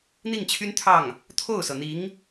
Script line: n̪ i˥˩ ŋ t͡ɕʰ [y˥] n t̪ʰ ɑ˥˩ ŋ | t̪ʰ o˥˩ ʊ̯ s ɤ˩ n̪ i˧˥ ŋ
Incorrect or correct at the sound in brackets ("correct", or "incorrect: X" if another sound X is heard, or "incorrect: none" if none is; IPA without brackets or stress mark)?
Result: correct